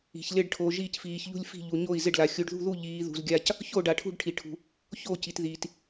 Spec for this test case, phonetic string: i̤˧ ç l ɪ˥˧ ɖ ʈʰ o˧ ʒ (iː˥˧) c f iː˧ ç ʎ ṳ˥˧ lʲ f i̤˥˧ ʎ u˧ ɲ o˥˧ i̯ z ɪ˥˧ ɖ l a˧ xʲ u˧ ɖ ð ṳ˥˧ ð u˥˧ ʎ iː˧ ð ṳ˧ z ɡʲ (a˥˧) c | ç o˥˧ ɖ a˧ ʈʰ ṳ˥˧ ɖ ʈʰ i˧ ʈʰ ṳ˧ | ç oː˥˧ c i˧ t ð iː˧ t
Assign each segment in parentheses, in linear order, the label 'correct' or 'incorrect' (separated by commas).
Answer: correct, correct